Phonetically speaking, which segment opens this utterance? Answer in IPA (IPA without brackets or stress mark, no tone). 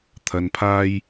t̪ʰ